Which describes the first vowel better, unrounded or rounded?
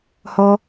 rounded